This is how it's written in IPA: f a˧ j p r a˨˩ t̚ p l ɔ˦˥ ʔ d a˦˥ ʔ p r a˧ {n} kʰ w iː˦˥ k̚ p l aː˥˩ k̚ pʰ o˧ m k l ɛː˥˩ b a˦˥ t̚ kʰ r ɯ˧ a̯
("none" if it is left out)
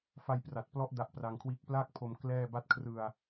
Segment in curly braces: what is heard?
ŋ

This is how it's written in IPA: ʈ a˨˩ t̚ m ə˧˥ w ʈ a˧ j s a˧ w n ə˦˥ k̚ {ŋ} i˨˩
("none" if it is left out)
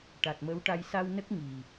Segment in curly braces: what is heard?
ŋ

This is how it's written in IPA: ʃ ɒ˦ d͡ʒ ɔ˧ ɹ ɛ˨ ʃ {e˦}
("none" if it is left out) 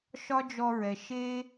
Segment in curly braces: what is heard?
e˦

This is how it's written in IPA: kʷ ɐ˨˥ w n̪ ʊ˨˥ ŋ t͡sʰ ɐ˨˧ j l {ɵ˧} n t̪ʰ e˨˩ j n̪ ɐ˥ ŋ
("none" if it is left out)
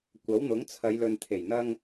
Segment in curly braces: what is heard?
ɵ˨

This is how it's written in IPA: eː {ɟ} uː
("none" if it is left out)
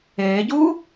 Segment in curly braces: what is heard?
ɟ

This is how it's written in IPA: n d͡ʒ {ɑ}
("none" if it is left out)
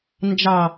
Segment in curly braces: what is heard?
ɑ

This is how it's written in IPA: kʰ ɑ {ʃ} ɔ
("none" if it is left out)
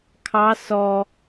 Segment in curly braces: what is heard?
s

